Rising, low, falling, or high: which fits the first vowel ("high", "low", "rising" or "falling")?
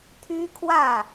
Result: high